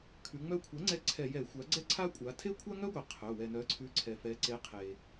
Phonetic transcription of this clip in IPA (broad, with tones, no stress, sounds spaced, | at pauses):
kʰ ʉ˩˧ ŋ͡m œ˦ kʷʰ ɛ˩˥ ŋ͡ǀ ɛ˦ ǀʰ ɛ˧˩˧ j ɛ˧˩˧ xʷ a˩˥ ɡ͡ǀ ɛ˦ ǀʰ a˦ kʷʼ a˩˧ tʰ e˦ kʷʰ a˦ ŋ œ˦ ɡʷ e˩ qʰ œ˩˧˩ w ɛ˩ n œ˩˥ ǀʰ ʉ˩˥ ǀʰ ɛ˩ f ɛ˩˧ ǀ e˩˥ qʰ e˩